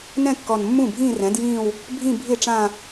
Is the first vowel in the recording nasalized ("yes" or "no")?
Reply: yes